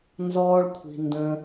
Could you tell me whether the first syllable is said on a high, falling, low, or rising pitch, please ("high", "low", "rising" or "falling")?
high